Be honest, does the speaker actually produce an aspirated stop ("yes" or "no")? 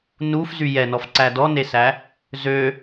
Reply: no